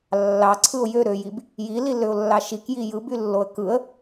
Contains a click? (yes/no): yes